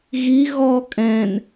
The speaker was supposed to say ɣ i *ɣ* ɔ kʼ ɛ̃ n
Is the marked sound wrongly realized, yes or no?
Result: no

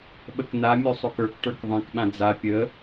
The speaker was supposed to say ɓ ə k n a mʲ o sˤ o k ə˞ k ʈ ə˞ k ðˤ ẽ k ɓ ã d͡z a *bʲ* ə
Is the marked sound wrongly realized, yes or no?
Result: yes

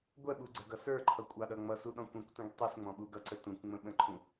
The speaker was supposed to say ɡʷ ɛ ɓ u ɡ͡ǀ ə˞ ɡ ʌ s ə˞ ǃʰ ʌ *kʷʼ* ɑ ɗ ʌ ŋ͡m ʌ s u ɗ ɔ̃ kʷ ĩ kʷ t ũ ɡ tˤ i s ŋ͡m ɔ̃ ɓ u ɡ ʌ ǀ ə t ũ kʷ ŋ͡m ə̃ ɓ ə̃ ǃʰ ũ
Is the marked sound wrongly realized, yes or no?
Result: no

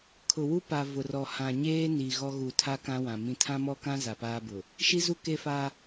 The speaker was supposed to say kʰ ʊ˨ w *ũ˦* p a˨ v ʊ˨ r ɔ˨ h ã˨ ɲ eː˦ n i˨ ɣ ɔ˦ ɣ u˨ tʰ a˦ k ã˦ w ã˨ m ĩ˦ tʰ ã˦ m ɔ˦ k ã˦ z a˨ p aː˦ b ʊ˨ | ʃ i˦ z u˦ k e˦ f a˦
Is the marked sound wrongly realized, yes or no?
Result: yes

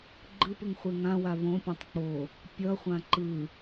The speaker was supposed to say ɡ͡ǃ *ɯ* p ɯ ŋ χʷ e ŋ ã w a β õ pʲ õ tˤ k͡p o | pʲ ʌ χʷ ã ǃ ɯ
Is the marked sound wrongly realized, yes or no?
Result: no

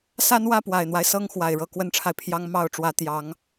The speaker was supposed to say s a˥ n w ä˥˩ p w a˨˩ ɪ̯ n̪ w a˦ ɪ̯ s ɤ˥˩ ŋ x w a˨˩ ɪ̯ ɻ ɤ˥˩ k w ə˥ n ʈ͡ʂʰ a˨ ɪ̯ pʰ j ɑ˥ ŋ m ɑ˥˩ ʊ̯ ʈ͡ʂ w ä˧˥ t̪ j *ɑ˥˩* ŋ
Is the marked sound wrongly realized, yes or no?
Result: yes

